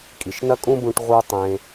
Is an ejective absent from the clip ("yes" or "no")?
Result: no